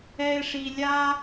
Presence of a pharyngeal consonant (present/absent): absent